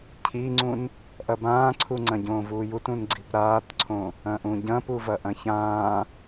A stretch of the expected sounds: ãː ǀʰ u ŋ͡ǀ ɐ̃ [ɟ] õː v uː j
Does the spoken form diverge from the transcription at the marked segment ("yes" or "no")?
no